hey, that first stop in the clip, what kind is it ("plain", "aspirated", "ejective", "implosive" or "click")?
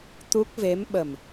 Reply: plain